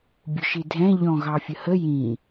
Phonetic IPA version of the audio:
bʲ ʊ ʃ i dʱ ɛ̃ ʎ ɔ̃ ɣ ɑ fʲ ə h ə j ĩ

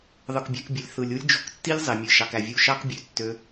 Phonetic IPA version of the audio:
ðˤ ɯ˨ k bʲ æ̤˧ k bʲ ɯ˨ lʲ θ ɯ˨ lʲ u˦ lʲ d͡ʒ o̤˧ k tː i˦ lʲ zˤ e˨ mʲ ɯ˨ ʃ ɑ˨ k æ˨ vʲ u˧ ʃ ɑ˦ k bʲ ø˨˦ tː ø˧

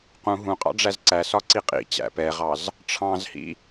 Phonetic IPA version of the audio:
q ũ ɦ ũ qʼ ɑ̰ ɖ͡ʐ æ z ǀ æ s ɒ ǀ i qʼ ḭ t͡ɕ æ̰ p ɛ ʁ ɑ z | ʈ͡ʂʰ ɑ̃ z h ḭ

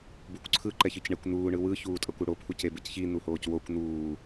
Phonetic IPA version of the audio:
b u kʷ ǀʰ ɯ ǃ ɛ ç ɯ c ɳ e kʷ n̪ uː ɳ ɯ w ɯ ç uː tʼ ʌ kʷ u ɽ o pʰ u c e b ɯ c ç i n̪ u h oː c w o kʷ n̪ uː

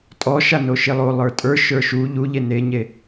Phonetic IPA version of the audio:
tʼ ɔ ʃ a n o ʃ e lˠ o lˠ ə˞ tʼ ə˞ ʃ ə˞ ʃ u ʎ u ʎ e n e ɲ e

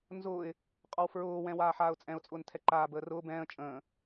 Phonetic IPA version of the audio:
n z ʊː ɪ̯ | qʼ ɒ w f ɹ ʊː w ɛ̃ w aː ħ aː ʊ̯ t͡sʼ ɛ̃ ʊ̯ t͡sʼ ʊː n tʰ ɛ ǃ aː b əː r ʊː b ɛ̃ː ə̯ t͡ʃʼ ə̃ː

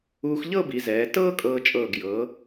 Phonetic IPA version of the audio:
uː˧ x ʎ ɤ˥˧ b i˩˧ z ɛː˩˧ t ɤː˥ kʼ ɤː˧ t͡ʃʼ ɤː˧˩ ɡ j ɤː˩˧

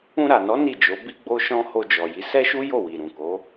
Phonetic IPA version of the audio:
ũ˧ ɾ a˨ n ɔ˨˦ n i˦˨ d͡ʒ o˨˦ b i˧ ɡ͡b o˧ ʃ ɔ̃˧ h o˧ d͡ʒ ɔ˨ j i˨˦ s ɛ˦ ʃ u˦ j o˦˨ w i˨ ɾ ũ˨ k o˨˦

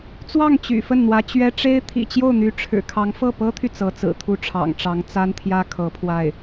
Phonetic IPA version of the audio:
t͡s w ɑ˥˩ ŋ t͡ɕ y̰˨˩ f ə˥˩ n n̪ w ä˧˥ t͡ɕ ɥ ɛ˥ ʈ͡ʂ e˥ ɪ̯ t̪ʰ ḭ˨˩ t͡ɕ j o˥˩ ʊ̯ n̪ y˧˥ ʈ͡ʂʰ ɻ̩˨˩ kʰ ɑ˧˥ ŋ f ɤ˥˩ p ɤ˥ t̪ʰ y˨ t͡s ɤ˧˥ t͡s ɹ̩˨˩ t̪ʰ u˥˩ ʈ͡ʂʰ ɑ̰˨˩ ŋ ʈ͡ʂ ɑ˧˥ ŋ t͡s a˥ n t̪ʰ j ä˥ kʰ ɤ˧˥ pʰ w a˥˩ ɪ̯

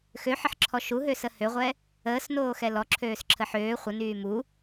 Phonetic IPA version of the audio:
x ø ħ ə ħ ǁʰ ɔ ʃ u ɦ ø s ə h ø ʁʷ ɛ | əː s n oː x ɛ l ɔ ǁʰ øː s ǁʰ ə ħ øː χʷ ə n yː m u

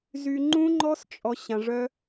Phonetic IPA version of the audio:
z y˧ ŋ͡ǃ ũ˦ ŋ͡ǃ ɔ˦ s t͡ʃʼ ɔ˧ ɕ ã˧ ʐ œ˦

